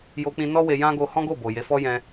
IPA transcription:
j o˧ k͡p ĩ˧ n ɔ˦ w e˧ j ã˦ ɡ o˧ h ɔ̃˦ ɡ o˦˨ b o˨ j e˨˦ f ɔ˦ j ɛ̃˧

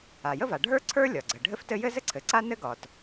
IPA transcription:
a˩ j ə˥ v a˩ ɖʱ ə˞˥ ǀʰ ə˞˥ lʲ ɒ˩ ɡ͡ǀ ə˩ ɖʱ ɘ˥ f t ɘ˥ j ɘ˥ z ɘ˥ ǀʰ ɘ˩ ǀ a˥ n ɘ˥ ɡ ɒ˩ t

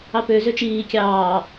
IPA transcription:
ɑ p ø z ø t͡ʃ iː kʲ ɑː

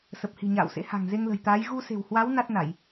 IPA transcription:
s ə˨˩ p̚ h i̤˨˩ ɲ a̰ː˧˨ w s ḛ˧˥ h a̤˨˩ ŋ z e˧ ŋ l ə̤˨˩ j t̪ aː˨˦ j ɣ u˧ s e̤˨˩ w h w a˨˦ w n a˦˥ t̚ n a˧˩˨ j

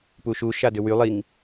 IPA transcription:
p u ʃ u ʃ a d ʏ w y lˠ i ŋ

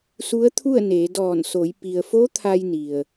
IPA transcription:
s u˧˥ ə̯ t̪ʰ u˥˨ ə̯ n eː˩˧ d ɔː˧˩ n s o˩˧ j p i˩ ə̯ f o˧˥ t̪ʰ a˧ j n i˩ ə̯

